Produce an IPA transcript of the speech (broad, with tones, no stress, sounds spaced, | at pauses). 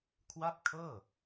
kʰ w a˥˩ p̚ kʰ ɤː˥˩